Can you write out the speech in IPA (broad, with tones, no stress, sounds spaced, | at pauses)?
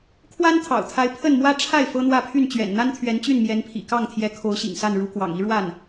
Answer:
kʰ w a˥ n t̪ʰ ɑ̰˨˩ ʊ̯ t̪ʰ a˧˥ ɪ̯ pʰ ə˥˩ n m w ä˥ ʈ͡ʂʰ a˥˩ ɪ̯ f ɤ˥ n̪ w ä˥˧ pʰ y˥˩ n t͡ɕ ɥ ɛ̰˨˩ n n̪ a˥ n t̪ʰ ɥ ɛ˧˥ n t͡ɕ y˥˩ n m j ɛ˧˥ n pʰ ḭ˨˩ k ɑ˥˩ ŋ t̪ʰ j ɛ˧˥ kʰ o˧˥ ʊ̯ ɕ ḭ˨˩ ŋ s a˥˩ n ɻ u˧˥ k w ɑ̰˨˩ ŋ i˥ ɻ w a˥˩ n